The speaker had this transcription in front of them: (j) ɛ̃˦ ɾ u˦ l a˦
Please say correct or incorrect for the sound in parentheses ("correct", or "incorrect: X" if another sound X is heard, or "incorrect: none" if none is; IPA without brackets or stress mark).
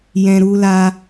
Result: correct